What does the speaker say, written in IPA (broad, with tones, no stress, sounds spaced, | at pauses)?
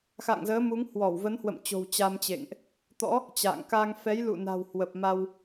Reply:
x a̰˧˨ ŋ z əː˨˦ m u˨˦ ŋ h w ɔ˧˩ w v ə˨˦ n h w ə̰˧˨ m t͡ɕ o̤˨˩ w t͡ɕ a˧ m t͡ɕ ḛ˧˨ ŋ ʔ | t̪ ɔ̰˧˥ | t͡ɕ a̰ː˧˨ ŋ k a˧ ŋ f ɛ˨˦ j l ṵ˧˨ n a̤˨˩ w h w ə˨˩ p̚ m a˧ w